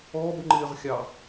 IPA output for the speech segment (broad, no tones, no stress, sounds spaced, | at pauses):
ɔ b ŋ͡ǃ ɪː ʁ xʲ ɑ